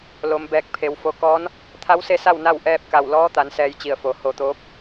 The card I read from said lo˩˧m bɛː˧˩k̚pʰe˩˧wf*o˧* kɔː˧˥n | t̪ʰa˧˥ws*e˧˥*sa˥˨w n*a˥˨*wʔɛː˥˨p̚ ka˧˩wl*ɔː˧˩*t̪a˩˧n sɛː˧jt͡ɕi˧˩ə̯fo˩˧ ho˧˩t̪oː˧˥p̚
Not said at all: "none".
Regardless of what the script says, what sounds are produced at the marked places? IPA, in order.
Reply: o˧, e˧˥, a˥˨, ɔː˧˥

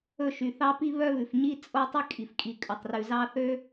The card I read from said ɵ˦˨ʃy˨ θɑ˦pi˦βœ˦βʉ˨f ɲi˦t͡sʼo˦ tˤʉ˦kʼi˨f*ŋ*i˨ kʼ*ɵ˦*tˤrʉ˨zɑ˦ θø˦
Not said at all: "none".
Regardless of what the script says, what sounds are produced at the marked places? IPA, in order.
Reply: kʼ, ɵ˨

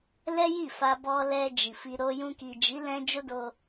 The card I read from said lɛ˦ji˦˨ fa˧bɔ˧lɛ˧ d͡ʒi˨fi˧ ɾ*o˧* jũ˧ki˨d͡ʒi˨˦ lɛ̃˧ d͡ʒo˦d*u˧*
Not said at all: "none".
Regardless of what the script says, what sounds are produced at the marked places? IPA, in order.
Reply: o˦, o˧

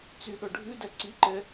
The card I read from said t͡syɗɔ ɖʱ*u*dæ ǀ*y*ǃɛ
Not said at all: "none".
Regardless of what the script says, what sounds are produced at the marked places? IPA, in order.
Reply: ʉ, i

